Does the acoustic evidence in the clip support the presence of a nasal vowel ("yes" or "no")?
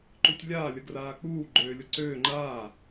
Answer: no